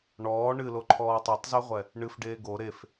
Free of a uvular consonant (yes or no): no